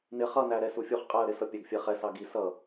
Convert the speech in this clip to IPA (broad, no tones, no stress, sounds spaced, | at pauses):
n ɪ χ ʌ n æ ɾ ɛ s u fʲ u χ qʼ æ ə̯ ɾ ɪ s ʌ pʲ æ ɡ fʲ ɛ χ ɛ s ɑ ɡ i s ʌ